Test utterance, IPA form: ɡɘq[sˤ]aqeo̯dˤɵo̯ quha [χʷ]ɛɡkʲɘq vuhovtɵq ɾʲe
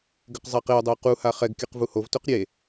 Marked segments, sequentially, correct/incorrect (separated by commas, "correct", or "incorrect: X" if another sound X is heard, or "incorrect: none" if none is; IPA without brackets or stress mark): incorrect: zˤ, incorrect: χ